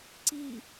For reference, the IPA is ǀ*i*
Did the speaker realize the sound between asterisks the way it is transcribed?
yes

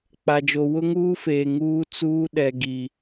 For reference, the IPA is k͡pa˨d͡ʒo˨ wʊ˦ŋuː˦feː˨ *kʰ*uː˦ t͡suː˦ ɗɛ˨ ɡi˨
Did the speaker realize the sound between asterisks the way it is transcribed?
no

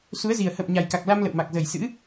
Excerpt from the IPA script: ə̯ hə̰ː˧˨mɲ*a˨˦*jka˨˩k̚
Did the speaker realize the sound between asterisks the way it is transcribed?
no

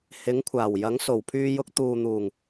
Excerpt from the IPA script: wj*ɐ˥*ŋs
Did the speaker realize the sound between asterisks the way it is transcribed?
no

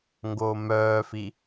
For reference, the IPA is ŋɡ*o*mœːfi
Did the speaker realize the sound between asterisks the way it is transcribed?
yes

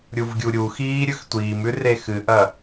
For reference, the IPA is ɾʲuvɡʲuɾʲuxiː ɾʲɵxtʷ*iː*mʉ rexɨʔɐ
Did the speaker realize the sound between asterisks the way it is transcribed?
yes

